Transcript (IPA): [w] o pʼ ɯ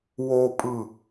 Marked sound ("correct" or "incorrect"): correct